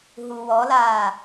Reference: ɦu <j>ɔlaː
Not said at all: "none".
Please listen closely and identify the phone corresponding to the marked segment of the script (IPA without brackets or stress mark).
w